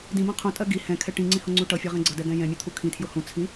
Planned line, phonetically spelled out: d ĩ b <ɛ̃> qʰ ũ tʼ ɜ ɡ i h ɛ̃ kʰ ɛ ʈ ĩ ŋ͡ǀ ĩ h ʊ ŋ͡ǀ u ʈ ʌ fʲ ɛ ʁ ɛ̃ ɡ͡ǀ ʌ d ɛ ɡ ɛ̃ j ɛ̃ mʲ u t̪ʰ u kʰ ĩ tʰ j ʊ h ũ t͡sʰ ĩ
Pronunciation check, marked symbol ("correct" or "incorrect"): correct